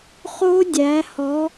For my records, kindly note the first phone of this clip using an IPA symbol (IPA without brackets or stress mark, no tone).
χ